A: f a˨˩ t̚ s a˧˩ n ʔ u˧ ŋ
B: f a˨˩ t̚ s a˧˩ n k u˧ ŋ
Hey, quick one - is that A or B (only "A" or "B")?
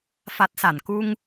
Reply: B